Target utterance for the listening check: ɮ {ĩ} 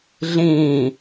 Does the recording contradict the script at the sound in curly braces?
no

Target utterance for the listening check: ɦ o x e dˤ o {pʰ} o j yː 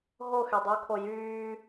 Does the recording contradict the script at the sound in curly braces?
yes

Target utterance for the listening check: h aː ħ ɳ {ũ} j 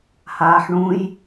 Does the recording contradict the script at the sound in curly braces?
no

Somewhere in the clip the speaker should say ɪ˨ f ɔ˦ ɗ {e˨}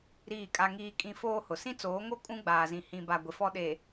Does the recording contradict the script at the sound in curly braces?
no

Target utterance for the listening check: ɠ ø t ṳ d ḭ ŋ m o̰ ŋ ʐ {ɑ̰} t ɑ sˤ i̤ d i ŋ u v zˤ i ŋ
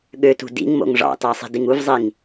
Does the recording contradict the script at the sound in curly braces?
no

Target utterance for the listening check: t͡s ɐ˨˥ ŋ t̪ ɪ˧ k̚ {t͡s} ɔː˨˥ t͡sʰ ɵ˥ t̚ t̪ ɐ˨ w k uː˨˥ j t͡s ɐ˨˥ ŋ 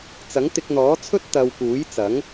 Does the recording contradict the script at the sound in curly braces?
yes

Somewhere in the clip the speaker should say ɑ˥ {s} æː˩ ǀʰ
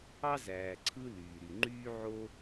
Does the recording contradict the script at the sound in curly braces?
yes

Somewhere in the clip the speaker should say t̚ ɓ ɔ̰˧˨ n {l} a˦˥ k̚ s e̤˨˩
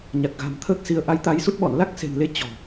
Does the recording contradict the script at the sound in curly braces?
no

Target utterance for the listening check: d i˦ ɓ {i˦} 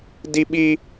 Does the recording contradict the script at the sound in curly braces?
yes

